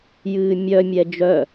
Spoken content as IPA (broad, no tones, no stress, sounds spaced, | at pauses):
j ɨː mʲ œ mʲ ɛ d͡ʒ œ